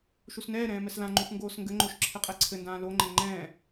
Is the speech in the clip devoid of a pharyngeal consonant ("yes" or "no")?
yes